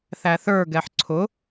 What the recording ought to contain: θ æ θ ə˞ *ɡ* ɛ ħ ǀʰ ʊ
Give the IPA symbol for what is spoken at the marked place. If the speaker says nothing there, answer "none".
ɡ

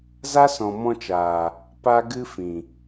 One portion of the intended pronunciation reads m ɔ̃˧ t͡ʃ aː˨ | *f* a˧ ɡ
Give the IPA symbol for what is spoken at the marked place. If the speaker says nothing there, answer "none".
p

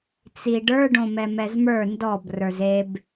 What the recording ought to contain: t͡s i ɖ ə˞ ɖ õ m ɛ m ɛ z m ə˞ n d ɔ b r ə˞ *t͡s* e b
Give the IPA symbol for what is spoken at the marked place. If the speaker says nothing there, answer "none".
z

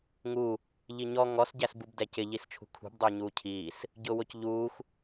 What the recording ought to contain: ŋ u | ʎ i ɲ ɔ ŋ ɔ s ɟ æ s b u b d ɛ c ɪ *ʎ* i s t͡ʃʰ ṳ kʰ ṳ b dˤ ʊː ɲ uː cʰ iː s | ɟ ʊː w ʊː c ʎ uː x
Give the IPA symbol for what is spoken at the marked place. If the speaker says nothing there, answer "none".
ʎ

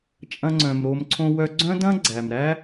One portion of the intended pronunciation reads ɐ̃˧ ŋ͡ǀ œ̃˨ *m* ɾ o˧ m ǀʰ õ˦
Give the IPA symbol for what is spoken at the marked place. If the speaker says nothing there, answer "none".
m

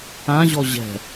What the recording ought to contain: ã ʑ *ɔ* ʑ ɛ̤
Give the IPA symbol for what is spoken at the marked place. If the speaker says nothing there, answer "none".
ɔ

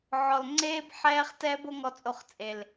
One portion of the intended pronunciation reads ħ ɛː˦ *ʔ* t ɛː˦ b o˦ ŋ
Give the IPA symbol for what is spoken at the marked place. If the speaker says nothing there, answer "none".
χ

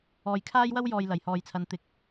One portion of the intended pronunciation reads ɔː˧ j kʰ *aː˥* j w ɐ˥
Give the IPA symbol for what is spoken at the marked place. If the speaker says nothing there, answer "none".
aː˥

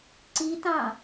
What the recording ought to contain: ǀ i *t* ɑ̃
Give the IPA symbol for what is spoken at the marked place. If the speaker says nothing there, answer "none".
t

